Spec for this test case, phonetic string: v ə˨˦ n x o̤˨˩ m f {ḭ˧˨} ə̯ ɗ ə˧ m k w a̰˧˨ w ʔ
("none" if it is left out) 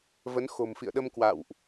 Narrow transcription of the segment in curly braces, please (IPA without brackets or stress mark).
ḭ˧˨